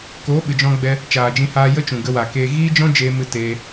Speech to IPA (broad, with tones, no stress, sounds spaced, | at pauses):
k oː˨˦ ɓ ɨ˨ d͡ʒ ɔ̃˧ ɡ͡b ɛ˧ | t͡ʃ aː˨ d͡ʒ ĩ˧ h aː˦ j ə˦ t͡ʃ ũ˨ ɡ ə˧ w a˨ k eː˧ ɣ iː˦ d͡ʒ ɔ̃˦ d͡ʒ eː˧ m ɨ˧ t eː˧